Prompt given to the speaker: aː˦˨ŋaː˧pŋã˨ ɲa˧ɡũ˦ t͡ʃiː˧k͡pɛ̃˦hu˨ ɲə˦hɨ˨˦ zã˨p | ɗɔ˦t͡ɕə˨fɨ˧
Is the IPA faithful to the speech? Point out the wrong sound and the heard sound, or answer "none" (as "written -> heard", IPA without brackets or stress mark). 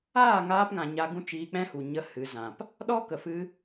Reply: t͡ɕ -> k